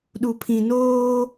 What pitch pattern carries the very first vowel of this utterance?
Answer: low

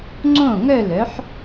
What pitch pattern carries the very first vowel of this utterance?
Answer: falling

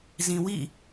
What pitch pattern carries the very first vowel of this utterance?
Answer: low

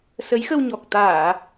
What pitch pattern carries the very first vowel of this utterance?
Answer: rising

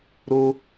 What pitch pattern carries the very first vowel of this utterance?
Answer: high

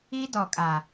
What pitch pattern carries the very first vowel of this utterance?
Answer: high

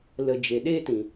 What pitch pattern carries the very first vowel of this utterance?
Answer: low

